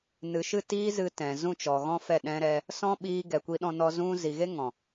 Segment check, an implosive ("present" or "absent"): present